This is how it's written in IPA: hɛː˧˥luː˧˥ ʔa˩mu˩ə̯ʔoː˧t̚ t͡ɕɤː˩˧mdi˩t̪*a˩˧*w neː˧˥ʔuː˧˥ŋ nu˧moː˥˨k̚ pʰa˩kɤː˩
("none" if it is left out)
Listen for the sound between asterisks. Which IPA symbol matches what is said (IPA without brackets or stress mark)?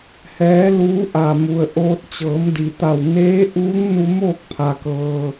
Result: a˧˩